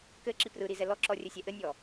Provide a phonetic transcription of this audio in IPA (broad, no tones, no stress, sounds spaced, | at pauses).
k ɘ ǁ i p r ɯ ɾ i z ɛ l ɔ ǁ ɔ rʲ ɘ sʲ ɛ ʔ ɘ nʲ ɔ